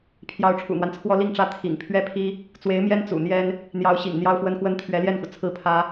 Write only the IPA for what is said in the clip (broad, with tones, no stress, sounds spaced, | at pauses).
pʰ j ɑ˧˥ ʊ̯ ʈ͡ʂʰ ṵ˨˩ n̪ w a˦ n t͡sʰ w ɔ˥ l i˥˩ ŋ ʈ͡ʂ ä˥ t̪ʰ ḭ˨˩ ŋ pʰ ɥ ɛ˥ pʰ i˥ | t͡s w e˧˥ ɪ̯ m j ɛ˥ n t͡s ṵ˨˩ n̪ j ɛ˥ n | n̪ j ɑ˧˥ ʊ̯ ɕ ḭ˨˩ ŋ n̪ j ɑ˥ ʊ̯ f w ə˥ n x w ə˥ n t̪ʰ ɥ ɛ˧˥ l j ɛ˥˩ n x u˩ t͡sʰ ɹ̩˥˩ pʰ ä˥